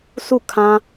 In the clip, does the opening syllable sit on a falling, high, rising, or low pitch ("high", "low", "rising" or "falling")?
falling